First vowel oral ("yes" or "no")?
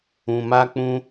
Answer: no